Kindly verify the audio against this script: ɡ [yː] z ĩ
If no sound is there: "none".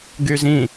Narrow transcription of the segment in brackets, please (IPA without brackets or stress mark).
y